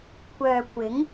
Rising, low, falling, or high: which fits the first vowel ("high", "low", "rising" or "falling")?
low